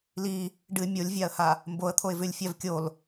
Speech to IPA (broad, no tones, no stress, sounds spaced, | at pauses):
l i | ɖ ɨ mʲ o lʲ vʲ a ə̯ h a | m b o ə̯ t̪ʰ o ɪ̯ v ʉ lʲ fʲ a v kʲ o l